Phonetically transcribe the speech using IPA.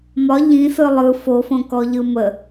m ɒ ʎ ĩ s ɯ lˠ ɯ f o f õ k ɔ ʎ ɯ m ə

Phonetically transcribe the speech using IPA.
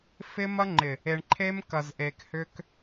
f ɪ˦ m ɐ˦ ŋ͡ǃ ɪ˨ | e˨ ɳ ǃʰ e˦ m k ɐ˨ z ʔ e˨ k h ʏ˦ k

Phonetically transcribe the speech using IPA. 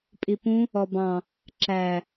pʼ i p ũ | ɔ b ɑ̃ | ǁ æ

